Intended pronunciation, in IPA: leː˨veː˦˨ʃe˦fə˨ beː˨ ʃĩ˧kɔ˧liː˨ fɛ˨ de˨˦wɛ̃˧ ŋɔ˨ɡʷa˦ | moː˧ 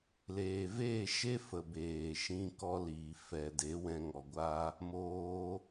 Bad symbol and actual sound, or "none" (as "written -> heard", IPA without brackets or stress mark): none